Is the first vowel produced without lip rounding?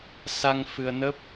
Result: yes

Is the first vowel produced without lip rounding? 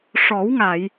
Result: no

